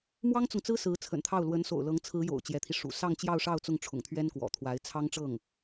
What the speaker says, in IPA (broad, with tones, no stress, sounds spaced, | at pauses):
m w ɑ˥ ŋ t͡s ʊ˨ ŋ t͡s ɹ̩˥ s ɹ̩˧˥ t͡sʰ ə̰˨˩ n t̪ʰ ɑ˥˩ ʊ̯ l w ə˧˥ n s o̰˨˩ ʊ̯ l ɤ˧˥ ŋ t͡sʰ ɹ̩˧˥ j o̰˨˩ ʊ̯ t͡ɕ j ɛ˧˥ t̪ʰ i˧ ʂ ṵ˨˩ s ɑ˥˧ ŋ t͡ɕ j ɑ˥˧ ʊ̯ ʂ ɑ˥˧ ʊ̯ t͡s ʊ˥˩ ŋ ʈ͡ʂʰ ʊ̰˨˩ ŋ t̪ʰ ɥ ɛ˥ n k w ɔ̰˨˩ t̪ʰ w a˧˥ ɪ̯ t͡sʰ ɑ˥ ŋ ʈ͡ʂ ɤ˥˩ ŋ